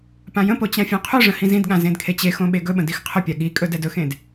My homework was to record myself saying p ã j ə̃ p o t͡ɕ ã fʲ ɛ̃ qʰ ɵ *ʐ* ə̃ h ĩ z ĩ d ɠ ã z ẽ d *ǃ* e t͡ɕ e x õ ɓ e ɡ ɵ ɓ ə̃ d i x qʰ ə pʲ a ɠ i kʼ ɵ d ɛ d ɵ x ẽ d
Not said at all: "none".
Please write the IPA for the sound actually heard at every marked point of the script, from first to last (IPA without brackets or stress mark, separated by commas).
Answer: ʐ, kʰ